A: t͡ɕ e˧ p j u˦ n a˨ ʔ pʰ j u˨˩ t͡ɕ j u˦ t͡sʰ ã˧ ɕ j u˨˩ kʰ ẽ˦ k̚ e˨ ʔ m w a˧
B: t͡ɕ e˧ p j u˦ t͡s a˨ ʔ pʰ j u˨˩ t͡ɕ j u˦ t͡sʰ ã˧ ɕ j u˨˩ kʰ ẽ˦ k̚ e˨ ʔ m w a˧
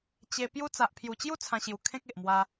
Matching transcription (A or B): B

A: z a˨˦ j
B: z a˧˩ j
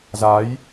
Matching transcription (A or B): A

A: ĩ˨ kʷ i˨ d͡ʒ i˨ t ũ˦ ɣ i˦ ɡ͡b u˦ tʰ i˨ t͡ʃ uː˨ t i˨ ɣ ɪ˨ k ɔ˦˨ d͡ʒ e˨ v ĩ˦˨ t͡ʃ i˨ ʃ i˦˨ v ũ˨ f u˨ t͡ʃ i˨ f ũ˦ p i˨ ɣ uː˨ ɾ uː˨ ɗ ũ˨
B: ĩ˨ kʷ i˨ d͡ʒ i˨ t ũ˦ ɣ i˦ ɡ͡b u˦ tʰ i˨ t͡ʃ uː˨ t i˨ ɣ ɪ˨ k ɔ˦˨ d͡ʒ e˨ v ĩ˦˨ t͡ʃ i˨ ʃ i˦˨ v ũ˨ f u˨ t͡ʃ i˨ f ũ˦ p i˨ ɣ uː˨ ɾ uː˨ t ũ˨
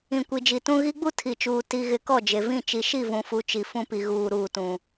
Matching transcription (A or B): B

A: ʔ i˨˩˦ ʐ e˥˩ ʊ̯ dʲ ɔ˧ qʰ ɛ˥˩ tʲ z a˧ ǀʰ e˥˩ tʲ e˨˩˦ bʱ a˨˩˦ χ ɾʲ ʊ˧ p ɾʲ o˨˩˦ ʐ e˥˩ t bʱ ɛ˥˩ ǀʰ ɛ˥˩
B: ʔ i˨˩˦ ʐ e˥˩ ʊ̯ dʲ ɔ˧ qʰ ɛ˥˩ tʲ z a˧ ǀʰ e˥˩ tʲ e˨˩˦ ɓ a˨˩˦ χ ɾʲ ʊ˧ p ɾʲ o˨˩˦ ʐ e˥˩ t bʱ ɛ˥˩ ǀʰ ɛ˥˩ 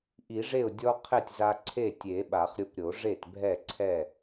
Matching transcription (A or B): B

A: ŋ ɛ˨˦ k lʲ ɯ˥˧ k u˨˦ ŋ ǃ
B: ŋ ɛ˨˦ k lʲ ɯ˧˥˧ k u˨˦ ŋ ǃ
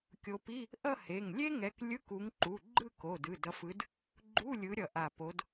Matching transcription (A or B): B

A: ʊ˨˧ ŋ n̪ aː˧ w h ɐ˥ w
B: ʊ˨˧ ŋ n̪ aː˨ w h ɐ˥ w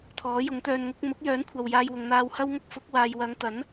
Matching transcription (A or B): A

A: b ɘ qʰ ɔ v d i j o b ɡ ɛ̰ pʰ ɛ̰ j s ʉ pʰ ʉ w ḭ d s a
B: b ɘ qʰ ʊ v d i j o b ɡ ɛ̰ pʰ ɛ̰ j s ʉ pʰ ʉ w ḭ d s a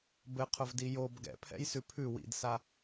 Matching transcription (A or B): B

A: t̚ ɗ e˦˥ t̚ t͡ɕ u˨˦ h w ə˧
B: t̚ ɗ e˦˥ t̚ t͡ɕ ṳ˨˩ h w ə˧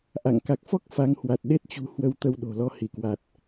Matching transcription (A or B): B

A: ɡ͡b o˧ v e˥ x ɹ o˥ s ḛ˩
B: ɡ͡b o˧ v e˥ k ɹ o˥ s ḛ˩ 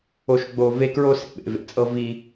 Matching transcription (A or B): B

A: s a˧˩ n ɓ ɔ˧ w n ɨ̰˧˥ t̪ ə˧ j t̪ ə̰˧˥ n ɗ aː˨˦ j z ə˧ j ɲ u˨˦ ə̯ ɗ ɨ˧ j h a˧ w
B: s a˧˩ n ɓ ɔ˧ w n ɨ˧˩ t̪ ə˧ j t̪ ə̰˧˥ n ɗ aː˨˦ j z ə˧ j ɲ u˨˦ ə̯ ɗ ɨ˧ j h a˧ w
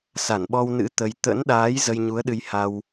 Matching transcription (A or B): A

